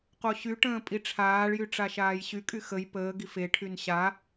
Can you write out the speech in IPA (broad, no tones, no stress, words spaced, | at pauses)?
qoɕyʈə̃ː pʼiʈ͡ʂʰaːɭjy ʈ͡ʂaʃaːjɕykʼy xəj pəːɡif eʈʰyn ɕa